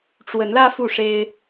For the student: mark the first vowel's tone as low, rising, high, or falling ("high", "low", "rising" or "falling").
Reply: rising